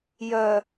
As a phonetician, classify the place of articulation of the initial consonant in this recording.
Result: palatal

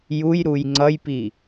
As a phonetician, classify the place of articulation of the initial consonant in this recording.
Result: palatal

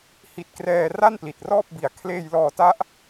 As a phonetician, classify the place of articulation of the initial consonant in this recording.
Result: glottal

